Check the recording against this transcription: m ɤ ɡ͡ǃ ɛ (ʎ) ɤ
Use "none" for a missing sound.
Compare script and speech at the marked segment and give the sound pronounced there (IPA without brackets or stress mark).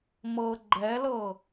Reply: l